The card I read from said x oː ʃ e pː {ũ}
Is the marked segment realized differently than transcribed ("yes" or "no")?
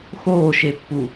yes